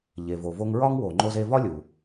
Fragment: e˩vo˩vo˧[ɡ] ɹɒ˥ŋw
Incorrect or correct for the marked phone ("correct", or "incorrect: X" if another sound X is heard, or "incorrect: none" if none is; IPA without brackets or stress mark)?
incorrect: ŋ